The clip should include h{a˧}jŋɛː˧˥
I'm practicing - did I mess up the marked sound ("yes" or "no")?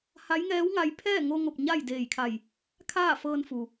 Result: yes